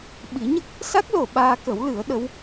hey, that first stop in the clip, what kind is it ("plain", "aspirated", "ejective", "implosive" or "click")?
implosive